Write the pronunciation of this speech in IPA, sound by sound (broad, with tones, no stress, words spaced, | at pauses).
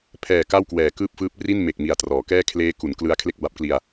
pʰɛː˨˩ ka˥˩wkwɛː˨˩kɯː˥˩p̚fɯː˦˥p̚ ri˥˩nme˨˩k̚ mi˨˩a̯trɔː˩˦kɛː˥˩ kʰleː˦˥ku˩˦n klɯ˦˥a̯ kʰle˥˩k̚ba˦˥p̚kli˧a̯